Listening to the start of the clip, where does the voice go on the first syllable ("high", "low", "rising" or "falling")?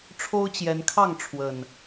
high